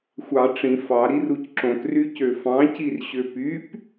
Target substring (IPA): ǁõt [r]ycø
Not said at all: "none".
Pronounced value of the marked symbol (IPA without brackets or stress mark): r